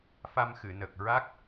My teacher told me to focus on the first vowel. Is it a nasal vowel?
no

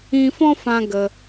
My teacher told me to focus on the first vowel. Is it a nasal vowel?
yes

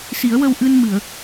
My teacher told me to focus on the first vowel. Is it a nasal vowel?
no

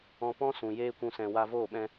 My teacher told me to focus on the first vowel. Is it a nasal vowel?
yes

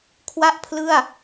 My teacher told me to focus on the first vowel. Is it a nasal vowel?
no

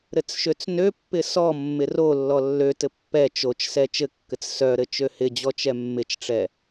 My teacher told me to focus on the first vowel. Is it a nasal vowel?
no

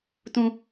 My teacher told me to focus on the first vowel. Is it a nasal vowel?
yes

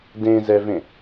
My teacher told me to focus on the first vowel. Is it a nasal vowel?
yes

